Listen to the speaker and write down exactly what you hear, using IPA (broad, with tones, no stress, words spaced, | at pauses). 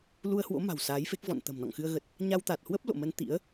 lu˧ə̯hwo̰˧˥ma̤˨˩w saː˨˦jfe˦˥k̚vɔ̰˧˨n t̪ə̤˨˩mnɔ̰˧˨ŋxɨ˧ə̯ ɣə˨˩t̚ | ɲa˧wt̪a˨˩t̚hwə˦˥p̚ lo̰˧˨mə˧n t̪ḭ˧˥ə̯